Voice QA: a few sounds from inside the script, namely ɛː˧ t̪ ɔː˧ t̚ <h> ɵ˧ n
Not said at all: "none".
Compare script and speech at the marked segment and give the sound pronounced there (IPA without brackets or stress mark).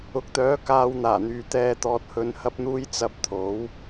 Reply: h